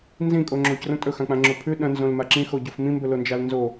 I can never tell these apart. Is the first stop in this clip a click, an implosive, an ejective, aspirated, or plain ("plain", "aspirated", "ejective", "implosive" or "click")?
ejective